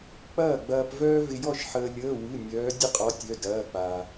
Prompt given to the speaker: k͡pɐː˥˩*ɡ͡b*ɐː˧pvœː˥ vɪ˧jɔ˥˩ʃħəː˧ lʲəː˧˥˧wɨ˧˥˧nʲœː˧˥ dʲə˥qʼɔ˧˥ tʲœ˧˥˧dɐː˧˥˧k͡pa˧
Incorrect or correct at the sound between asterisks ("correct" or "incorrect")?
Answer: correct